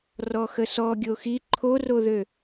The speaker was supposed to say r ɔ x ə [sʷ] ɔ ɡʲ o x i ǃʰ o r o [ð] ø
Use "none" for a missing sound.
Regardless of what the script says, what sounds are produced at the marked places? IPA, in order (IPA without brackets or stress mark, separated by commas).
s, ð